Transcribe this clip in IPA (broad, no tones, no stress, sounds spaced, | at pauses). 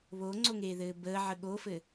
β o ŋ͡ǀ o ŋ eː ð ɘː b əː ʕ ə ɠ o f ɘ